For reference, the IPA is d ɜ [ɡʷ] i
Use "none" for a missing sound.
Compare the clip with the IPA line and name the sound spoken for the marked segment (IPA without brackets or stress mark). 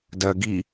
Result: ɡ